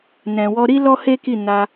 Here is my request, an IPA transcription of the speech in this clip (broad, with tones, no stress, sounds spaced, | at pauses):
n ɛ̃˨ w ɔ˧ ɾ i˦ l ɔ˦ h e˦ k i˦˨ n a˧